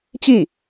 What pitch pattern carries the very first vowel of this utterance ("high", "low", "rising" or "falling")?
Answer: falling